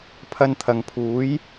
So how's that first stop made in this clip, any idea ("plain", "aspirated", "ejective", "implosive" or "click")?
aspirated